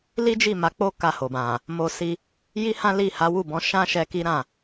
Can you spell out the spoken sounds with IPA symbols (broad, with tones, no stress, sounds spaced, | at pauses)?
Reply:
l i˦ d͡ʒ i˦˨ m a˨˦ k͡p o˦ k a˦˨ h o˨ b ã˨ | m o˧ s i˧ | j i˦ h ã˦ l i˦˨ h a˨˦ w u˦˨ b ɔ̃˧ ʃ ã˦ ʃ ɛ˧ k i˦ ɾ ã˦˨